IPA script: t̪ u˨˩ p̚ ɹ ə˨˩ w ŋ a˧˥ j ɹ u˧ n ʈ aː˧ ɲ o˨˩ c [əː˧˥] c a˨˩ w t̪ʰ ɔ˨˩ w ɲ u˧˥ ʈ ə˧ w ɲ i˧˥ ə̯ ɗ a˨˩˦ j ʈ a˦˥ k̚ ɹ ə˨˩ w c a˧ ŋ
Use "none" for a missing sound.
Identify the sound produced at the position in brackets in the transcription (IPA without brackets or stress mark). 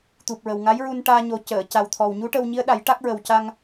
əː˨˩˨